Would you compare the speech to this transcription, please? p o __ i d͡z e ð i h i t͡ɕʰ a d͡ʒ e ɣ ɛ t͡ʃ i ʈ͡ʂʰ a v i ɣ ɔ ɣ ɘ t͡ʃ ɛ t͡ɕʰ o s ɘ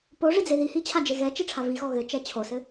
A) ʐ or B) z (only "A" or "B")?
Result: A